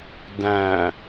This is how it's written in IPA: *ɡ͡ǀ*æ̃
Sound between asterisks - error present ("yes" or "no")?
yes